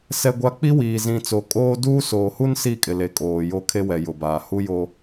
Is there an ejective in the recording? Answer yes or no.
yes